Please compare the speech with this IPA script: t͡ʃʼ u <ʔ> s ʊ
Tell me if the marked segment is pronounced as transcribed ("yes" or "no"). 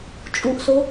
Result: yes